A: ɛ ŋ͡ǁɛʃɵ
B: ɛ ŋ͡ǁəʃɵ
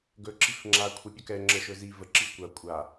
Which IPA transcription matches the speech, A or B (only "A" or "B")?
B